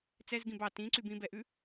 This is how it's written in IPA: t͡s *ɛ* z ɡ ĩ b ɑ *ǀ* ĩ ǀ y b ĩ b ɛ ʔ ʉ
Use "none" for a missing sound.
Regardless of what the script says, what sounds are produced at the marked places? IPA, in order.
ɛ, t

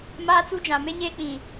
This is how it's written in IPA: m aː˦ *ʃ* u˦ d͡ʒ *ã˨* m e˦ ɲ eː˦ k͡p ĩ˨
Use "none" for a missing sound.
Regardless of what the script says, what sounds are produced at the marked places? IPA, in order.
t͡s, ã˨

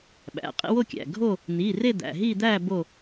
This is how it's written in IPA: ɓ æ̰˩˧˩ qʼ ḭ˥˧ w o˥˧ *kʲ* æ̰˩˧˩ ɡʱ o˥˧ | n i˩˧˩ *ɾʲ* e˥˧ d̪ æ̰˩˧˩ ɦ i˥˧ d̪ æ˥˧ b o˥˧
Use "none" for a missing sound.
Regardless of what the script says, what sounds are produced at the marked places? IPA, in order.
kʲ, r

